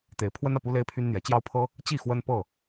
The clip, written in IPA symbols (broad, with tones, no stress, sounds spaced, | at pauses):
t̪ e˨˦ ɪ̯ pʰ w ə˦ n ä˨ p u˦ l e˦ ɪ̯ pʰ y˦ n n̪ j ɛ˨˦ t͡ɕ j ɑ˦ ʊ̯ pʰ ɤ˦ | t͡ɕ i˥˨ x w ə˦ n p ɤ˥˨